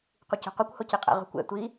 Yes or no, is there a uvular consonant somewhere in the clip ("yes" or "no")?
yes